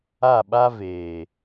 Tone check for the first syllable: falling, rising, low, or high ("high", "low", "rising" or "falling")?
falling